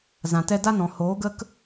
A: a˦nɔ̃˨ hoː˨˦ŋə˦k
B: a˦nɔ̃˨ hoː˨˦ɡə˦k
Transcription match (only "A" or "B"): B